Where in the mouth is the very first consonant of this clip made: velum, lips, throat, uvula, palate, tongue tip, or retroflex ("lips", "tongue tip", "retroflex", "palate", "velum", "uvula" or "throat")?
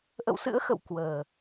throat